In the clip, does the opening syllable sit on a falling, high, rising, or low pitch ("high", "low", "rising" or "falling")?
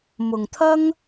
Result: low